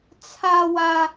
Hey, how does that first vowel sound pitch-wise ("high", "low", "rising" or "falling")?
high